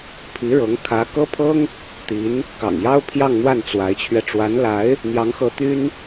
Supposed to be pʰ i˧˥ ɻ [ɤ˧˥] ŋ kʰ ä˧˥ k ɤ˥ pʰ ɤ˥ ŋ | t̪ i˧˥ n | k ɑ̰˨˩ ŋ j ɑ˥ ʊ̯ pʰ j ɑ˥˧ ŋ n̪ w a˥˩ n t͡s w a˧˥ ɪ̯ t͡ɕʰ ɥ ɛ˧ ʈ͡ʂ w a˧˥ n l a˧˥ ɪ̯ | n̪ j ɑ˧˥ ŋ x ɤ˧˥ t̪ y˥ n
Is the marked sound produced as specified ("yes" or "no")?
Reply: yes